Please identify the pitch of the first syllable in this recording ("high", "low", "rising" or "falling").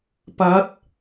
rising